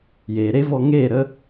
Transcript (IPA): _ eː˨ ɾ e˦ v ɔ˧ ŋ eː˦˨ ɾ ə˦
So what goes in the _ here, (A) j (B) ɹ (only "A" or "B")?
A